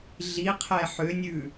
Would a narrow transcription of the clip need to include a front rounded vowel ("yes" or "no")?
yes